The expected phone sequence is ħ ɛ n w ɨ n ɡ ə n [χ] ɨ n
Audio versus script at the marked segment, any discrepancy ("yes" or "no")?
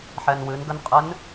yes